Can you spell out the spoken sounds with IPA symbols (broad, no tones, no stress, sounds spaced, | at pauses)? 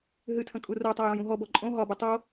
ɦ ɨ tʰ ə̃ kʼ u r o tˤ a j õ j ũ ɦ ɔ b ɔ ǃʼ õ ɦ ɒ b ə tˤ o